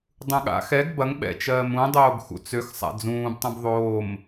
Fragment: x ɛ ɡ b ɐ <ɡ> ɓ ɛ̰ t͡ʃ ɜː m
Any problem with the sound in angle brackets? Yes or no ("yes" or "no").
yes